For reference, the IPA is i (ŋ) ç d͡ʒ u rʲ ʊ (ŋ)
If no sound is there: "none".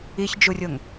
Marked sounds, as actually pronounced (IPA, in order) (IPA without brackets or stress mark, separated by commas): none, ŋ